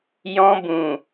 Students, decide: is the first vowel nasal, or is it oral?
nasal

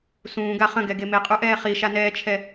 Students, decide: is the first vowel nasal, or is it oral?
nasal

